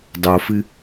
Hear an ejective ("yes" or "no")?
no